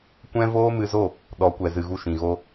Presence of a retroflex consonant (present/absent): absent